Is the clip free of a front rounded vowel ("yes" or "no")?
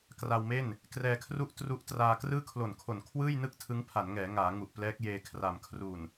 yes